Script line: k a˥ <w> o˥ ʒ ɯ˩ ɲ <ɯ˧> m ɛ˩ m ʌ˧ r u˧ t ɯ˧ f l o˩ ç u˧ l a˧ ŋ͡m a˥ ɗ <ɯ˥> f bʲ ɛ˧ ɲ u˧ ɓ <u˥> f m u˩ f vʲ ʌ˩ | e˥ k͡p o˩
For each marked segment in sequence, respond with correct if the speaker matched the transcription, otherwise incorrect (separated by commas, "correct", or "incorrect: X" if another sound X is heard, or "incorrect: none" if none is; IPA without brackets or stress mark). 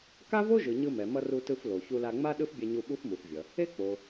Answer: incorrect: v, correct, correct, correct